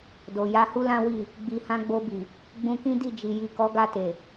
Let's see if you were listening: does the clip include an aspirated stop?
no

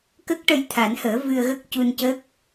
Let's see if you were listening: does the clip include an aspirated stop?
yes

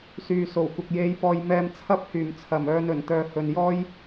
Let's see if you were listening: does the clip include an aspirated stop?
yes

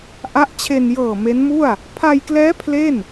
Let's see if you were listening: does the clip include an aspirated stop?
yes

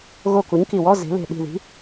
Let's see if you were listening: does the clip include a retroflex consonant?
no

